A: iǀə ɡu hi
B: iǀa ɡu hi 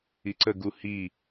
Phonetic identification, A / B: A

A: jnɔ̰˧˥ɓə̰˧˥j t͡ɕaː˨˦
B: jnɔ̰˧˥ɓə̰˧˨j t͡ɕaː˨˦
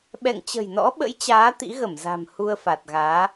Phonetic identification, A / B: A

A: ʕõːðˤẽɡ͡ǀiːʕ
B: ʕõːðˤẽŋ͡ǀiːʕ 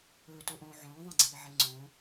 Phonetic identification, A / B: A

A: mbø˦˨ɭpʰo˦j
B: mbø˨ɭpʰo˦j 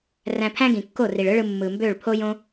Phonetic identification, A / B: A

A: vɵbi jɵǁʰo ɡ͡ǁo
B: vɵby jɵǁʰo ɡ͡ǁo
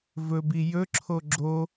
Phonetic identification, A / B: A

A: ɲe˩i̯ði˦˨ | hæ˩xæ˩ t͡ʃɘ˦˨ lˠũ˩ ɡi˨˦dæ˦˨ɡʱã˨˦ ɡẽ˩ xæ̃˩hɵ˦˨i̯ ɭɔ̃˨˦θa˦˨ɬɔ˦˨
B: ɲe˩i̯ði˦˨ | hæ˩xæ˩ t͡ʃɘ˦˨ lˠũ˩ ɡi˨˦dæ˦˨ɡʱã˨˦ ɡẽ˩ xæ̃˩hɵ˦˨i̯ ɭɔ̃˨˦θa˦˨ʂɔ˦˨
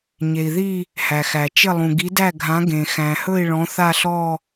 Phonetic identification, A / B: A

